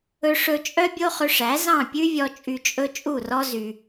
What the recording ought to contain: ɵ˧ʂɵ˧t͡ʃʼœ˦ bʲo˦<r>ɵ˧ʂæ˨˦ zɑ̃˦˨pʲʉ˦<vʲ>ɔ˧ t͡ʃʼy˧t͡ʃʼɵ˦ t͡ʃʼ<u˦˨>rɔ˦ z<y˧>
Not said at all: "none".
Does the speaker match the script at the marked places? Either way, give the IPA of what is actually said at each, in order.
χ, vʲ, u˦˨, y˧

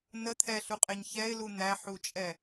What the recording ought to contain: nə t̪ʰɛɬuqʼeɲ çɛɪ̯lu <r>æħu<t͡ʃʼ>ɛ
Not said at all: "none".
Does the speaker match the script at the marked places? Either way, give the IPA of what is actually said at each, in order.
n̪, t͡ʃʼ

